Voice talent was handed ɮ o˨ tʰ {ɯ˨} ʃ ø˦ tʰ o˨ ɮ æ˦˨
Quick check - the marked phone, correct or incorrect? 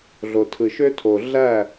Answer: correct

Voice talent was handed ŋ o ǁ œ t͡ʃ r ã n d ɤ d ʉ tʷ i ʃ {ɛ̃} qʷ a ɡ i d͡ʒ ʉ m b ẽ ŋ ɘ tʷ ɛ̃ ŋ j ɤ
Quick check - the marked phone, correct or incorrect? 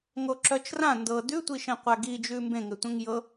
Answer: correct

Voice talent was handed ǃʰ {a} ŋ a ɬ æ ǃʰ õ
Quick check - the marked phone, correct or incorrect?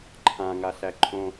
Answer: incorrect: ã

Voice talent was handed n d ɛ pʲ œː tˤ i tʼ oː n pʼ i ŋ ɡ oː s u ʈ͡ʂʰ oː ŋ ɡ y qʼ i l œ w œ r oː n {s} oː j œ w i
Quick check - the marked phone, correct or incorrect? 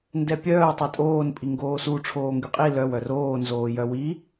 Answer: incorrect: z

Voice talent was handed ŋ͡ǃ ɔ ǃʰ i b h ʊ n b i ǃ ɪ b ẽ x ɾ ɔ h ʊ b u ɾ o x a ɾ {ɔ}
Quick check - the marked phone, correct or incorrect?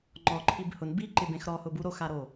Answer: incorrect: o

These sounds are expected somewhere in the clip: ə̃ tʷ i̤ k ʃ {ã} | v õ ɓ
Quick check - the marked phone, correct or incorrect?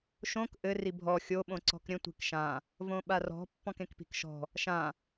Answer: correct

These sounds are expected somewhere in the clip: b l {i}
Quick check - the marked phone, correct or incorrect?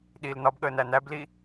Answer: correct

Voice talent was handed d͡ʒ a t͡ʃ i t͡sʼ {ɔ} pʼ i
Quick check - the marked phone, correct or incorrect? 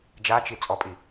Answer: correct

